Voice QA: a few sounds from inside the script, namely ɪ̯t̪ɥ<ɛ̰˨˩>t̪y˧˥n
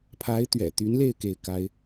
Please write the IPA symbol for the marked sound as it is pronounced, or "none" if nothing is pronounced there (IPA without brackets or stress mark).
ɛ̰˨˩